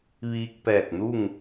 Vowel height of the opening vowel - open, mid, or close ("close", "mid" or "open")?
close